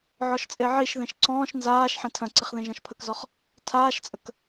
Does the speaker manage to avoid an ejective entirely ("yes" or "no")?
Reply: no